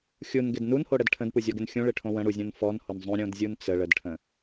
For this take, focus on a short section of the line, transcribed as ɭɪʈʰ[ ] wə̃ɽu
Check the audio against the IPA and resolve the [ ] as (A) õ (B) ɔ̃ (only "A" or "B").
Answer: A